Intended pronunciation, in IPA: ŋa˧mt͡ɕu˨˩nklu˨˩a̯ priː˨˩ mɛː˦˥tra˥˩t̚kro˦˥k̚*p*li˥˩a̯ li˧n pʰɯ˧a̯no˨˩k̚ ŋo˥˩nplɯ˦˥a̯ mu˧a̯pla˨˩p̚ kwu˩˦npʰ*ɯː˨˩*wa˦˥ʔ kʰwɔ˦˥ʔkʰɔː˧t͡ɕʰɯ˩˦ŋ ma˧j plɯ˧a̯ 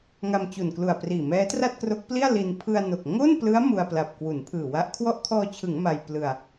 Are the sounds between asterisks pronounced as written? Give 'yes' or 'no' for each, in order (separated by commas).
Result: yes, yes